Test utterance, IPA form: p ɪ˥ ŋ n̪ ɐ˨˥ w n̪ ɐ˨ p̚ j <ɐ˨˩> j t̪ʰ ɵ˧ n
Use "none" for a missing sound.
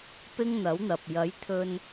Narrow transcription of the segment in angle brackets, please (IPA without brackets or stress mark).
ɐ˨˥